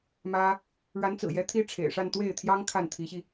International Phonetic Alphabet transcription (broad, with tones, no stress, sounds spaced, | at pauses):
m ä˥ | ɻ a˧˥ n t͡s ɹ̩˨˩ j ɛ˧˥ t̪ʰ i˥ ʈ͡ʂʰ ḛ˨˩ ɪ̯ ʂ a˥˧ n t̪ w e˥˩ ɪ̯ t̪ʰ j ɑ˥ ŋ kʰ a˥˩ n t̪ʰ i˧˥ ɕ i˧